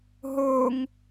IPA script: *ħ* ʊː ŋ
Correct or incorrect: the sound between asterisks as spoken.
incorrect: ɦ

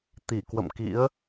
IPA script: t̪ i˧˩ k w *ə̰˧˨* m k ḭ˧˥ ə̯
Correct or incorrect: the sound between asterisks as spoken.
correct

